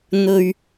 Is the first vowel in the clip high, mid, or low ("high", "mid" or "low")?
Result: mid